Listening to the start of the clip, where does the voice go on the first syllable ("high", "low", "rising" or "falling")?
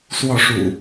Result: falling